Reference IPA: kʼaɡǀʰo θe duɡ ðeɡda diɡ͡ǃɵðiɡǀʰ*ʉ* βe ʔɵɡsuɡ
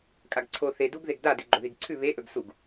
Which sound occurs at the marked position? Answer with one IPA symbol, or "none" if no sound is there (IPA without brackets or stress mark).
ʉ